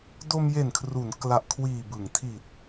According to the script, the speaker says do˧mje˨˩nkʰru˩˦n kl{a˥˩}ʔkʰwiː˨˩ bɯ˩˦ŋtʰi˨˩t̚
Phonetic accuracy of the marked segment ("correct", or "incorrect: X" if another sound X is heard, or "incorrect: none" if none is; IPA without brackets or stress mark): incorrect: a˨˩